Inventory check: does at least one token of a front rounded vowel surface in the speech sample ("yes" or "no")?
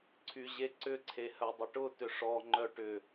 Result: yes